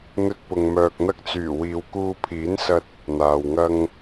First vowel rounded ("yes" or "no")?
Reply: yes